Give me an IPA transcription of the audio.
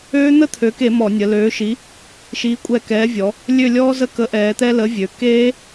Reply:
øː˦˥ n̪ ə˦˥ t̪ʰ ø˩˧ k e˧˩˧ m ɔ˧˩˧ nʲ ə˩˧ l øː˨˥ ʃ i˨˥ | ʃ iː˨˥ kʷʼ ɛ˦˨ k ɛː˨˥ vʲ ɔ˩˧ | lʲ ø˦˨ lʲ ɔː˦˥ z ə˦˨ k ə˨˥ ʔ ɛː˩˧ t̪ ɛ˦˥ l ə˨˥ vʲ ø˩˧ k eː˦˥

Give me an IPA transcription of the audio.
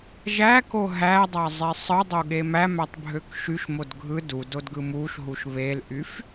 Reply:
ʒ æ k o ɦ æ dˤ æ zˤ e sˤ ɯ dˤ o ɠ e m æ m æ tˤ bʱ ø k ʃ y ʃ m o d ɡʱ ɯ d u d o d ɡ ɯ m u ʃ ɦ u ʃ β e l ʔ y f

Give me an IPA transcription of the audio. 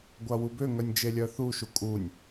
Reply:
ɡʷ a w u b ø ŋ œ nʲ d͡ʒ e lʲ œ θ u ʃ u kʼ u nʲ

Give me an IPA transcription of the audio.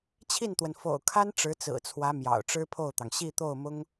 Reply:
t͡ɕʰ i˥˩ n t̪ w ə˩ n f o̰˨˩ ʊ̯ kʰ a˥ n ʈ͡ʂ ɻ̩˧˥ t͡s ɹ̩˨˩ t͡sʰ w ä˧˥ m j ɑ̰˨˩ ʊ̯ ʈ͡ʂ ɻ̩˥ pʰ o˥˩ ʊ̯ t̪ ɑ˩ ŋ ɕ i˥˧ t̪ o˥˩ ʊ̯ m ʊ˥ ŋ

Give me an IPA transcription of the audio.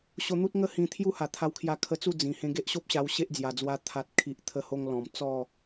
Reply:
ɕ o˧ n̪ u˦ t̚ ŋ ə˦ h ĩ˧ t̪ʰ j u˥˧ h a˨˩ t̪ʰ a˧ w kʰ j a˧ kʰ ə˧ t͡s u˥˧ d͡z ĩ˨˩ h ẽ˧ ɡ e˦ ʔ ɕ o˦ p̚ ɕ a˧ w ɕ e˦ ʔ d͡z j a˨˩ d͡z w a˧ t̪ʰ a˨ t̚ kʰ i˨ ʔ t̪ʰ ə˧ h o˧ ŋ l ɔ̃˨˩ m t͡s ɔ˥˧

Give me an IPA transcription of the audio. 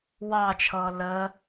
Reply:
w ɑ t͡ʃʰ ʌː l ɜ

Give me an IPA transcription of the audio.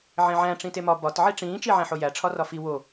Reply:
ʕ ẽ ʕ æ̃ ʈ͡ʂ ĩ t e m ɒ b ɒ t ʕ i ʈ͡ʂ ĩː t͡ʃ i ʕ æ̃ ħ o j æ ʈ͡ʂʰ ɒ r ɒ f i w o

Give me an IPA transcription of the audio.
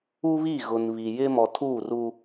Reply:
u˦ β i˦˨ ɣ ʊ˨ n β i˨ j ɪ˦ m ɔ˨ tʰ uː˦˨ r u˦

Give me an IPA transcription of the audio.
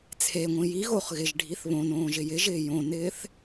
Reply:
t͡sʰ e ŋʷ ĩ j i ɣ o χ ɣ ɪ ʒ ɖʱ i θ β õ n õː ʒ ɪ j ɪ ʒ ɪː j õ n ɪː θ

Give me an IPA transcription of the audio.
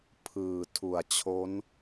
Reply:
pʰ ɯː˨˩ tʰ u˨˩ a̯ t͡ɕʰ o˦˥ n

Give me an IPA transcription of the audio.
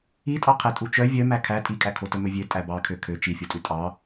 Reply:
i tʼ ɑ qʰ ɛ tʼ u t͡ʃ œ vʲ œ m æ kʰ æ tʼ i kʼ æ kʰ o t ɵ m ɵ vʲ ø tʼ æ b ɑ kʰ ø kʰ ø t͡ʃ i fʲ o tʼ ʉ tʼ ɑ

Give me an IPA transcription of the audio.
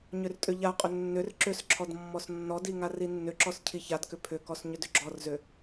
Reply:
ɲ ʏ r tʼ ʏ ʎ a qʼ ʏ nː ʏ r ǁ ʏ s ǁʰ ɔ d mː ɔ s nː ɔ d i ŋ a r i nː ʏ ǁ ɔ s cʰ i ç a d k ʏ pʰ ʏ k ɔ s ɲ ʏ d ʏ ɡ͡ǁ ɔ r z ʏ

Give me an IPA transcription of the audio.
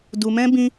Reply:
d u˧ m ɛ̃˦ b ĩ˦

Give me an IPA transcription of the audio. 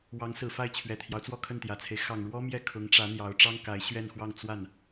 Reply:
w ɑ˧˥ ŋ s ɹ̩˨˩ f a˥˩ ɪ̯ t͡ɕʰ ɥ ɛ˨˩ t̪ʰ j ɑ˦ ʊ̯ t͡s w ɔ˥˧ kʰ ə˥˩ n t̪ j ä˨˩ t͡sʰ e˦ ɪ̯ x ɑ˨˩ ŋ ɻ w ɔ˥ m j ɛ˥˩ kʰ ʊ˧˥ ŋ ʈ͡ʂ ä˧˥ n̪ j ɑ˧˥ ʊ̯ ʈ͡ʂ ɑ˥ ŋ k a˧˥ ɪ̯ ɕ ɥ ɛ˥˧ n x w ɑ˥˧ ŋ t͡s w a˥˩ n

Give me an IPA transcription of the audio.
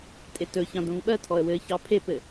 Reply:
tʼ e t ɵ ç ɑ̃ d õ ŋ ɓ ɜ tʰ ɔ ə̯ w ɘ ç ɑ pʰ e p ɘ

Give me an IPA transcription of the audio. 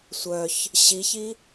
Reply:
sʷ œ ç | ɕ i ç i

